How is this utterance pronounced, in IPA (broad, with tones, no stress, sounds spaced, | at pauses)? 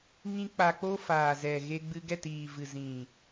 ŋ ĩ˦ k͡p a˧ k͡p o˦ f aː˨ z ɛ˨ ɣ e˧ ɡ͡b ɨ˧ ɡ ɛ˦˨ t iː˨ v ɨ˨ z ĩ˨